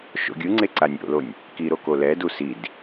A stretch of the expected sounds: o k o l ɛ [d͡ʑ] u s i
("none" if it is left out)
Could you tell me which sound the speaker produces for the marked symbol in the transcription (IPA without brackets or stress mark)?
d